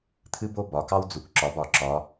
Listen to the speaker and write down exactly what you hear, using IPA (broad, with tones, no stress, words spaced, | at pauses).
t̪ʰɨ˥bo˥ bɒ˩˧kɑ˥wd͡zu˩˧k ǁɒ˩˧bɒ˩˧ǁɒ˩˧